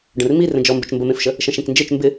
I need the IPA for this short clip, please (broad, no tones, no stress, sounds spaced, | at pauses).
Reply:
ɖ ə̃ r m i r ə̃ d͡ʒ ɔ m b ə t͡ʃ m b ə m ẽ f ʃ ə | ʃ ə̃ ʃ ẽ k n d͡ʒ e t͡ʃ m b ɪ